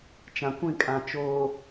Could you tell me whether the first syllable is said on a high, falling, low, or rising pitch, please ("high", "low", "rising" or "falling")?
low